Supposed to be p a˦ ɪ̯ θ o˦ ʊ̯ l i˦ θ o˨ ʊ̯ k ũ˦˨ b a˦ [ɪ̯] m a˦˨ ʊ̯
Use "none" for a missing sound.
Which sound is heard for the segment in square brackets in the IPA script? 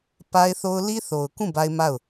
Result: ɪ̯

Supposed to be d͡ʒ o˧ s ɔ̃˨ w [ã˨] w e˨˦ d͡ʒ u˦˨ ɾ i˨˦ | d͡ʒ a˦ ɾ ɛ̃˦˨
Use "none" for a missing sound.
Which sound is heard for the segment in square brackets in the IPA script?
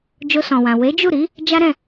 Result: ã˨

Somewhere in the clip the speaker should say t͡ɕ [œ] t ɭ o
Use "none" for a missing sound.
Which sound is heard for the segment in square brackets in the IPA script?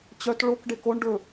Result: œ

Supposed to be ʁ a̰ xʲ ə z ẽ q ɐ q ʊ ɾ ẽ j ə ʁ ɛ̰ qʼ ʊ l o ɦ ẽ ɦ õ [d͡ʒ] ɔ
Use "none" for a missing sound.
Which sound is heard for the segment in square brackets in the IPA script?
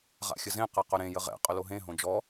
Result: d͡ʒ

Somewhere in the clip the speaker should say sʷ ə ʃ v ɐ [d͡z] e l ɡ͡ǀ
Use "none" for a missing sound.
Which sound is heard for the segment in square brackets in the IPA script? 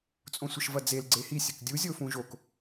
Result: d͡z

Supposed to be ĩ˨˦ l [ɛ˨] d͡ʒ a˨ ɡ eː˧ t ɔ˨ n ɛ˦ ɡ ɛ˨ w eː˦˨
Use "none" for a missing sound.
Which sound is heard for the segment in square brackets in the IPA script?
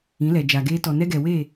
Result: ɛ˨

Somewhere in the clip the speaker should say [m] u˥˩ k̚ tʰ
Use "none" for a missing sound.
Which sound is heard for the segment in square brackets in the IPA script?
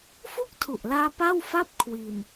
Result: f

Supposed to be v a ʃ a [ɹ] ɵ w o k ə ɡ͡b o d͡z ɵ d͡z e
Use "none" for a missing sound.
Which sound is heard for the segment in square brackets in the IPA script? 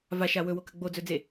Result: w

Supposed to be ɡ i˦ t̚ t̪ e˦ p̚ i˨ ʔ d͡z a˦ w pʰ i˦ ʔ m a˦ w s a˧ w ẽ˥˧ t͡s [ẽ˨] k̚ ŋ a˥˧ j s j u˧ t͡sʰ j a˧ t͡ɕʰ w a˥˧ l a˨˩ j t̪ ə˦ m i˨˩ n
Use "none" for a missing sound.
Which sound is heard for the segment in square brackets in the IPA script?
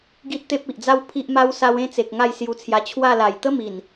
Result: e˨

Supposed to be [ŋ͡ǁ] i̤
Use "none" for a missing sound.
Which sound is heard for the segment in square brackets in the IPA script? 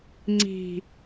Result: ŋ͡ǀ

